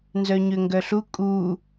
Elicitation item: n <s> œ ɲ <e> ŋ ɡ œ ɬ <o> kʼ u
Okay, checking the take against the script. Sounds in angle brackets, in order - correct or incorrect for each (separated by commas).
incorrect, incorrect, incorrect